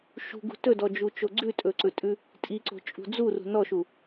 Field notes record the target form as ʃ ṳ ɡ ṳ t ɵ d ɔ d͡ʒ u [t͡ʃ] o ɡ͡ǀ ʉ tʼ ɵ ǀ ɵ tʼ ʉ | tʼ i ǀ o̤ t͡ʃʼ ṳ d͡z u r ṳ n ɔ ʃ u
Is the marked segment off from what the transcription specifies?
no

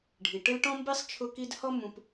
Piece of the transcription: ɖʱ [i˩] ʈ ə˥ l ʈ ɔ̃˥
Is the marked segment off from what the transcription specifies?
no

